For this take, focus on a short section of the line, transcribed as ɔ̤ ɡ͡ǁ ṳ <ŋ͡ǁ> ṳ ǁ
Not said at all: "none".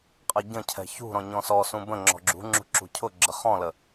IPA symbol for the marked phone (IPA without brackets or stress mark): ŋ͡ǁ